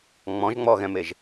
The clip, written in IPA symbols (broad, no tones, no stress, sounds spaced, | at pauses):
ŋ͡m ɔ̃ ʒ ŋ͡m ɔ ɣ ɛ̃ m e ʒ